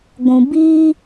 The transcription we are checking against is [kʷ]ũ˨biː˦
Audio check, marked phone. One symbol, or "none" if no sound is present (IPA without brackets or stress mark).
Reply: ɡʷ